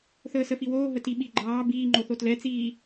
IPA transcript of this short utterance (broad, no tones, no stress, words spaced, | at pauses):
θəːsəfiwoː ɦətiɓi ɡ͡ǃɑː biːŋ͡ǃo θotlɛt͡siː